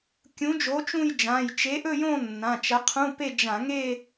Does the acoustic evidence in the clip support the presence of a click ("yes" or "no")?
no